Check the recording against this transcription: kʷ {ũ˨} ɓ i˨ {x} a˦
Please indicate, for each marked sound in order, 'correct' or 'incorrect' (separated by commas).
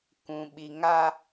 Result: correct, incorrect